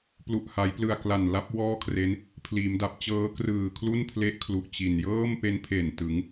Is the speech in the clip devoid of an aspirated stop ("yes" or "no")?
no